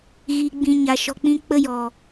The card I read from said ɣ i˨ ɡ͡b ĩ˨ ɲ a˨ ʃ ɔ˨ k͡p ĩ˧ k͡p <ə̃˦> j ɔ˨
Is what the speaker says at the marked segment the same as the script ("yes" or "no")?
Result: no